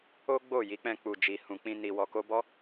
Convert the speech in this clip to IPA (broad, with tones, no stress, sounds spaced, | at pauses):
o˦ ɡ͡b o˦˨ j i˨˦ k͡p ɛ̃˧ k͡p u˨ d͡ʒ i˨ h ũ˨ k͡p ĩ˧ n i˨ w ɔ˨ k o˧ b ɔ˦